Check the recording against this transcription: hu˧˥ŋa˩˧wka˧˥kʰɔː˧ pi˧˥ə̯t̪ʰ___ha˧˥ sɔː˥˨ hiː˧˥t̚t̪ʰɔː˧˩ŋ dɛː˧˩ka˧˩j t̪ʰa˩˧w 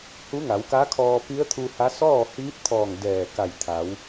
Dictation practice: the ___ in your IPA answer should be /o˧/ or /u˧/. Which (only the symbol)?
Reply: u˧